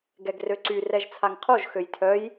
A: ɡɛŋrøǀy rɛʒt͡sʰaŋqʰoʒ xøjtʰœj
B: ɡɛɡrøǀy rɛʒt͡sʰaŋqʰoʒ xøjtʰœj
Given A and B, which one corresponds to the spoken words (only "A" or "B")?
B